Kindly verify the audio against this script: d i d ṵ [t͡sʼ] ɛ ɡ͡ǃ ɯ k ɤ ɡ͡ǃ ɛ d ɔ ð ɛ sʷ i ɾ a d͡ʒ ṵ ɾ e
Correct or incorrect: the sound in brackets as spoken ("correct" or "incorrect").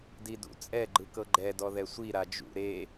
correct